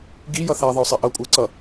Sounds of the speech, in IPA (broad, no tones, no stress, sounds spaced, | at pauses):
ɡ i j ʌ θ æ ðˤ ə ʊ̯ sˤ i ʔ ʌ kʷʼ ə ʊ̯ ǀ ʌ